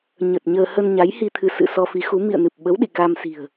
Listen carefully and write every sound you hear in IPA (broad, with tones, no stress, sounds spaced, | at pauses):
ɲ ə˨˩ t̚ ɲ əː˧ h ə˧ n ɲ a˨˦ j h i˧ t̪ʰ ɨ˧ s ɨ̰˧˨ s ɔ˧ f i˨˦ x u˨˦ m ḭ˧˨ ə̯ n ɨ˨˩ p̚ ɓ ə˨˦ w ɗ ḭ˧˨ k a˧ m s i̤˨˩ ə̯